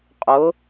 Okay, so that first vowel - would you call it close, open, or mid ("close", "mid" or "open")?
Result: close